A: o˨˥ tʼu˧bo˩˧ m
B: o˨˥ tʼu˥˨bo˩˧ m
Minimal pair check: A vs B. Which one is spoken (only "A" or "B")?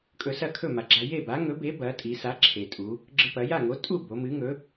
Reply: B